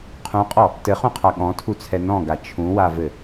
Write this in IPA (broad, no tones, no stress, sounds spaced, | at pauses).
qʰ ũ qʼ ɔ | t ɘ χ ũ qʰ a ɠ ɔ̃ tʰ u t͡sʰ ɛ n ɔ̃ ɡ a t͡ʃʰ ũ w a v ɘ